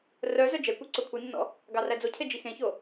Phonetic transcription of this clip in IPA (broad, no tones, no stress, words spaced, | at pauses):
rœ zœd͡ʒɛkʷe ǀokʷʰinːɔ̰ | ɡɑræd͡zocʰe d͡ʒixẽço